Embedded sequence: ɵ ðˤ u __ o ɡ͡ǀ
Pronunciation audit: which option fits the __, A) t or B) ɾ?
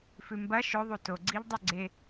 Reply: A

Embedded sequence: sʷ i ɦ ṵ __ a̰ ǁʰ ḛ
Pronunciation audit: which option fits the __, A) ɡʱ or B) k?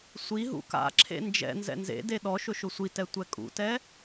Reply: B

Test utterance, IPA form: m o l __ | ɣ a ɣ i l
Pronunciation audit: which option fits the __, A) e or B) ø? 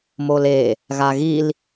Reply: A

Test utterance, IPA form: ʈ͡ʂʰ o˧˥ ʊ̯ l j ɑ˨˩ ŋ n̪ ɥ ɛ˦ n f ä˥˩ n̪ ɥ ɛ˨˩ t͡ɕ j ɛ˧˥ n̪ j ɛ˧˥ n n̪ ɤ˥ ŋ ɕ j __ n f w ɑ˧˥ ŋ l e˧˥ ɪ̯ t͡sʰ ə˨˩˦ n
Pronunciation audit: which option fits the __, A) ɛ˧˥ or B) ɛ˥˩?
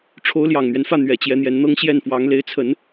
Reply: B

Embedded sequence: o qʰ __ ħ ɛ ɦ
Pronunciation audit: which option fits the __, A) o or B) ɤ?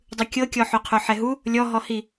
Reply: A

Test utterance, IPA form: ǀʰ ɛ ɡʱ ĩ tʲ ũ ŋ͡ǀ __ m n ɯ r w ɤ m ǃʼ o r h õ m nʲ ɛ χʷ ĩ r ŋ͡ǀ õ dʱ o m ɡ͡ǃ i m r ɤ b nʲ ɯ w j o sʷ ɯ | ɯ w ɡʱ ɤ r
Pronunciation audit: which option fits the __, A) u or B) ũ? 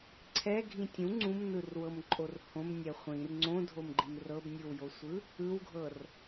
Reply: B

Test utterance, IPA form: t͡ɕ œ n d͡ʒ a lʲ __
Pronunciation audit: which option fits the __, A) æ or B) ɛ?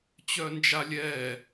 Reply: B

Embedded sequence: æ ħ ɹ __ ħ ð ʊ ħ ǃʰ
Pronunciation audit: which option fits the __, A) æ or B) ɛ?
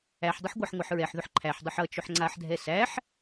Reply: B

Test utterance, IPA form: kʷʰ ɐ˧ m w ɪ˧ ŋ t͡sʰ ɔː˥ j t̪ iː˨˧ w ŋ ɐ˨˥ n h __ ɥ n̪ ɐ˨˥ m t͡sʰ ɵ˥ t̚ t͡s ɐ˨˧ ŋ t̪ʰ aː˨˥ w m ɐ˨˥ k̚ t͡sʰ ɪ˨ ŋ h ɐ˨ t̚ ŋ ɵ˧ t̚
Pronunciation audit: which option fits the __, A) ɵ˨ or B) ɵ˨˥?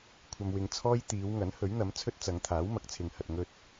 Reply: B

